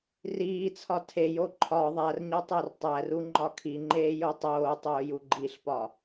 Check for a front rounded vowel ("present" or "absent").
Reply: absent